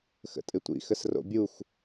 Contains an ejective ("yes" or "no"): yes